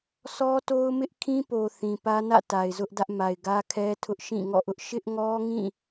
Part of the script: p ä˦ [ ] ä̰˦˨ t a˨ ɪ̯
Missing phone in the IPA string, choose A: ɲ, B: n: B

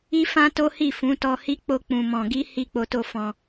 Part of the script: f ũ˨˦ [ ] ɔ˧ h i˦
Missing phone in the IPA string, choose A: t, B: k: A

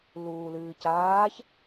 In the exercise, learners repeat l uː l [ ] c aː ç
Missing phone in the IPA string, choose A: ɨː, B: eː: A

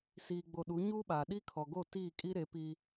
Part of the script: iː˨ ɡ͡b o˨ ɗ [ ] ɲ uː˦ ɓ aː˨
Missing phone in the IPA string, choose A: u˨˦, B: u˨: A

